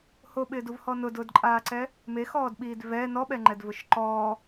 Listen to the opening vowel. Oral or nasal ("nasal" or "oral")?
oral